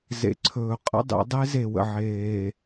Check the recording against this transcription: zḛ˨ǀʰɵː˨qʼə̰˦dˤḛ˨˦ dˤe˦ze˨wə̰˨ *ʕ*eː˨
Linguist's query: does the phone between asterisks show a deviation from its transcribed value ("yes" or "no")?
no